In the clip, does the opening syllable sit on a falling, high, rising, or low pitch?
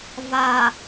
low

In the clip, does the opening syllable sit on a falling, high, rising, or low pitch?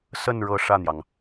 falling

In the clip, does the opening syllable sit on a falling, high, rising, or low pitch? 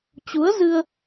rising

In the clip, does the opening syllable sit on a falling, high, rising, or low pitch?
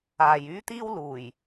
low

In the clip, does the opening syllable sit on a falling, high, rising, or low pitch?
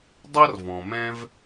high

